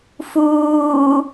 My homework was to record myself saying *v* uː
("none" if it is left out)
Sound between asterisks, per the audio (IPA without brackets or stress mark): f